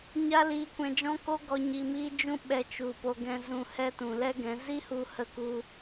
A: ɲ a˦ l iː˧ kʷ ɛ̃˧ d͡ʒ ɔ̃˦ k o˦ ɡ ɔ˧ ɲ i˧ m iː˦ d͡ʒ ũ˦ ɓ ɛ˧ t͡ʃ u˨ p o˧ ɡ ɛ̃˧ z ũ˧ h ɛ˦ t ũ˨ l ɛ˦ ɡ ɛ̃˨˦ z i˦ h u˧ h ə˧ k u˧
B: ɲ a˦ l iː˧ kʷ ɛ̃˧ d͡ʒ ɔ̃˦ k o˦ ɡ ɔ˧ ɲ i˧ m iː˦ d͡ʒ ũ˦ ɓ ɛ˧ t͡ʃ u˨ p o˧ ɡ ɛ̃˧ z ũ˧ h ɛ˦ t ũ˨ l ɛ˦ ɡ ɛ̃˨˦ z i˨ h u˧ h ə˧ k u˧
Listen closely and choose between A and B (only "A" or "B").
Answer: A